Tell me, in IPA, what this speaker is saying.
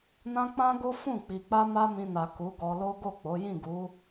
n ã˦ k͡p ã˦ ɡ o˦ f ũ˦˨ k͡p i˨ k͡p a˧ m a˦ m ĩ˧ n a˨ k u˨˦ ɡ ɔ˧ l o˦ ɡ o˦˨ k͡p o˨˦ j ĩ˦˨ ɡ u˨˦

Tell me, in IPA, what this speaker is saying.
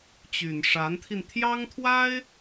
t͡ɕ y˨˩ n ʂ a˧˥ n t̪ʰ i˧ n t̪ʰ j ɑ˥ ŋ t̪ʰ w a˥ ɪ̯

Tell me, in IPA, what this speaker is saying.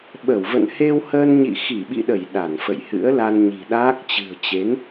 ɓ ə˧˩ w v ə̰˧˨ n h e˧ w h əː˧ n ɲ ḭ˧˨ x i˧˩ ɓ ḭ˧˨ ɗ ə˧˩ j ɗ a˧˩ n f ə̰˧˨ j h ɨ̰˧˥ ə̯ l a˧ n ɲ i̤˨˩ ɗ aː˦˥ k̚ t͡ɕ ɨ̤˨˩ ə̯ t͡ɕ e˨˦ n

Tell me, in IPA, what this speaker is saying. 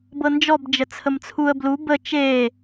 b ɤ n d͡ʒ ɔ b d͡ʒ ə t͡sʰ ə m t͡sʰ u ə̯ b l u b ə t͡ʃ e

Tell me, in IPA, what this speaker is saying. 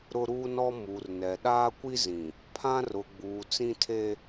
ɾ ʊ˦ ɾ uː˦ n ɔ˦ m u˨ r n ɛ˨ ɗ aː˦ kʷ i˦ z ĩ˨ | pʰ ã˦ r ʊ˨ ɡ͡b uː˨ t͡s ĩ˦ tʰ e˦

